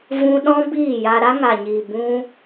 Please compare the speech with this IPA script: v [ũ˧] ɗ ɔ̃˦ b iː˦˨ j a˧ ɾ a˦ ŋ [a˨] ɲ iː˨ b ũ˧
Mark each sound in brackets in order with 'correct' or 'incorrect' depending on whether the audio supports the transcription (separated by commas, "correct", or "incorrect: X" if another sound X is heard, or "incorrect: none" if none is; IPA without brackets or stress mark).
correct, correct